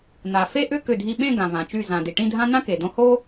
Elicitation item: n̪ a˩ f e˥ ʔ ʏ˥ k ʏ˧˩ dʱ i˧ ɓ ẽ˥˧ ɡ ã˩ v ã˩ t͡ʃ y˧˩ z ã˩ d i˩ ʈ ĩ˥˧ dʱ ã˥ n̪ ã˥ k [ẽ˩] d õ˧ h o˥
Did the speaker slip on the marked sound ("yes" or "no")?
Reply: yes